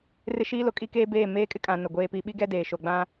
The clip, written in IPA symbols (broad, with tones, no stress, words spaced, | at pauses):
rɪ˦ʃiː˦lo˨ kʼi˦keː˦beː˦˨ meː˦kʼɪ˦kʼã˨ nʊ˨ɡʷeː˦pi˦ ɓi˦ɡɛ˦ deː˨ʃo˨ɡ͡bã˦